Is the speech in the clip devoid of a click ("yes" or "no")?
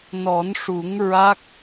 yes